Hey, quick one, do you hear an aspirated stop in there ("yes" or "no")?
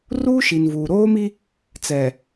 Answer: no